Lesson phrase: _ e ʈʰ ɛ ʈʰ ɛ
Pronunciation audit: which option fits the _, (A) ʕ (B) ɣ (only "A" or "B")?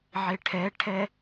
A